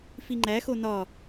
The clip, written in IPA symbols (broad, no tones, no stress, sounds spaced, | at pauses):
f i ŋ͡ǃ æ x o n ɒ